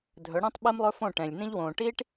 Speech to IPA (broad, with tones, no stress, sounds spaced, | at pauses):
dʱ ɵ˨˦ ɽ ĩː˦ tˤ ɓ i˦ m lˠ ɵ˦ f õ˦˨ ʈ ɛ̃˨ lʲ n ĩ˦ ʎ w õː˨ ʈ iː˦ ʈ